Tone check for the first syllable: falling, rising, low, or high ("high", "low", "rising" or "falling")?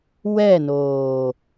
falling